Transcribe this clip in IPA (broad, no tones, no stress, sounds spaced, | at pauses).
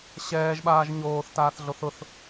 ɕ ɛː ʒ ɓ aː ʒ ɲ oː θ t aː θ ɮ o θ ʊ θ